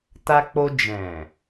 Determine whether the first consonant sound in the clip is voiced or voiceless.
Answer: voiceless